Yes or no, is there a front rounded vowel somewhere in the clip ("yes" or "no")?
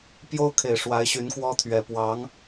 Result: yes